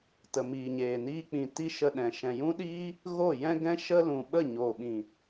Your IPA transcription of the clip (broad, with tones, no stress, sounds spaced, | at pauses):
t ə˨ m iː˨ ɲ eː˨ n iː˧ k͡p ĩ˨ t i˧ ʃ ə˧ ɗ ɛ̃˨ ʃ ɛ̃˨ j ũ˦ ɗ iː˦ | ɣ o˦˨ j ɛ̃˦ ɡ ɛ̃˦ ʃ ə˦ l ũ˨ ɓ ə˦˨ ɲ o˨ ɓ ĩ˨